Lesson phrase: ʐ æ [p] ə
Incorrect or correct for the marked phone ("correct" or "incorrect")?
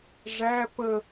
correct